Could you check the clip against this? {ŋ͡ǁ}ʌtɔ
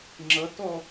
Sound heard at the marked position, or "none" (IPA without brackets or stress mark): ŋ͡ǁ